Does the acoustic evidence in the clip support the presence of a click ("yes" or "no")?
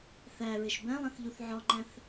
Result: yes